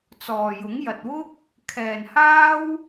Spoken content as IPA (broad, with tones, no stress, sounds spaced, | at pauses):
t͡s ɔː˨ j ʊ˨˥ ŋ j ɐ˨ t̚ w ʊ˥ k̚ | kʰ ɛː˨ n h aː˥ w